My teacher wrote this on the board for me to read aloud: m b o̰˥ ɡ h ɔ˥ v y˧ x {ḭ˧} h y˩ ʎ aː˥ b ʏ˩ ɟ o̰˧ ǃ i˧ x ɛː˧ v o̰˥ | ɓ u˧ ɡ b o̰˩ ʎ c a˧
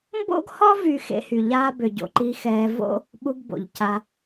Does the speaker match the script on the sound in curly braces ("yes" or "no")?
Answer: no